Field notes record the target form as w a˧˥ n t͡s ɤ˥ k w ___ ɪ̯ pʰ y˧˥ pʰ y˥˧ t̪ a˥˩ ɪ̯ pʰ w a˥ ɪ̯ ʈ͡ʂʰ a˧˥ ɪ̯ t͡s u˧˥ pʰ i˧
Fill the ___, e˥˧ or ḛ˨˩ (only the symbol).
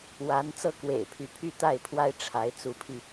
ḛ˨˩